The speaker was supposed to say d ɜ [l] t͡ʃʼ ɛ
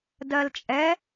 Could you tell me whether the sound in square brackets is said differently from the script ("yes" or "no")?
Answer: no